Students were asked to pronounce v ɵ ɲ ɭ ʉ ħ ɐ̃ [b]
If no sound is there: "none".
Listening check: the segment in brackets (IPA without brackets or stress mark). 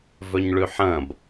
b